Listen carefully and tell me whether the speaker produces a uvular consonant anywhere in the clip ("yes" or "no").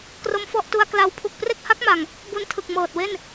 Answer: no